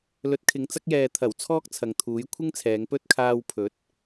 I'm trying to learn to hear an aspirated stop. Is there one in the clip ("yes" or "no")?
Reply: yes